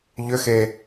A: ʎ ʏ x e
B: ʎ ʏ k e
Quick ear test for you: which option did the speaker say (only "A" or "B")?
A